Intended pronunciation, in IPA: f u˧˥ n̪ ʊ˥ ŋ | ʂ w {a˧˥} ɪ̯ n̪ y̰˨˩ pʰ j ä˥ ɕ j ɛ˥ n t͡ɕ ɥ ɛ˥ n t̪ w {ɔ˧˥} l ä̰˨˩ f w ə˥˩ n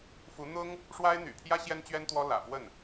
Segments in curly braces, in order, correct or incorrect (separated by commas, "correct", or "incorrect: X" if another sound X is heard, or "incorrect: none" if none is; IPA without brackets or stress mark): incorrect: a˥, incorrect: ɔ˥